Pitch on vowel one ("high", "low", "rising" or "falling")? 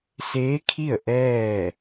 rising